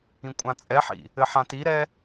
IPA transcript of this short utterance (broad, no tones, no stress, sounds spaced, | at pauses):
ĩ kʷʼ ã t͡sʼ ɛ ħ ḭ | ɘ ħ ã t i ɾ ɛ